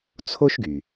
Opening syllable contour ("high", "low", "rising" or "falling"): high